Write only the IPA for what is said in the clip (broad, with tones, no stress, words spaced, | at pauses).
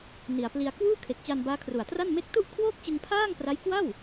ni˨˩a̯pli˧a̯ kwuː˥˩kʰe˨˩k̚t͡ɕa˧n baː˦˥kʰru˨˩a̯tra˥˩n me˦˥k̚tu˥˩ʔ kʰwoː˥˩k̚t͡ɕɯ˧ŋpʰaː˥˩ŋ pra˦˥jkwa˥˩w